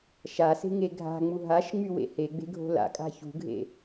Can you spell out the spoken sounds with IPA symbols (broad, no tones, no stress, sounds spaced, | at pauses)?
ʃ a s e̤ ŋ e ɡʱ a̤ ŋ͡m u ɦ a ʃ ŋ͡m y w ḛ h e ɡ͡b e̤ ɡʱ o̤ l a̰ kʼ a̤ ç ṳ ɡʱ ḛ